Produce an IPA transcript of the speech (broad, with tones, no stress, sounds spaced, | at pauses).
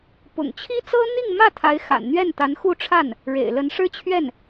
p ʊ̰˨˩ ŋ t͡ɕʰ i˥ t͡s ɤ˥ n̪ i˥˧ ŋ m ä˥˩ t̪ʰ a˧˥ ɪ̯ x a̰˨˩ n n̪ ɥ ɛ˥˩ n t̪ a˧˥ n x u˥˧ ʈ͡ʂʰ a˥˩ n | ɻ ḛ˨˩ ɪ̯ l ə˧˥ n ʂ ɻ̩˥ t͡ɕʰ ɥ ɛ˥˩ n